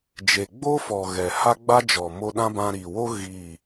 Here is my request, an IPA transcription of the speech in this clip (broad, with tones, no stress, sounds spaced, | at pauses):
d͡ʒ e˨ ɡ͡b o˦ f ɔ˨ ɣ ɛ˨ h a˦ ɡ͡b a˦ d͡ʒ ɔ˨ m o˧ ɗ ã˦ b ã˧ ɾ i˨ w o˦ ɣ i˦˨